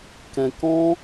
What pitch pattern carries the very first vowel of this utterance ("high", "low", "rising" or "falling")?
low